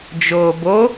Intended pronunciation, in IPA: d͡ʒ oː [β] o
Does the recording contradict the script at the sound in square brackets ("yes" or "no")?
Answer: yes